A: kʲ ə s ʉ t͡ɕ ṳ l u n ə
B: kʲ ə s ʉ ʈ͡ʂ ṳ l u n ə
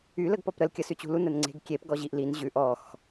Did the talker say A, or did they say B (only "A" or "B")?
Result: A